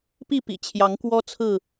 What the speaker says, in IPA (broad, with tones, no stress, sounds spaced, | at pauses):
p i˥˨ p ḭ˨˩ t͡ɕʰ j ɑ˨˦ ŋ k w ɔ˦ t͡sʰ ɹ̩˥˨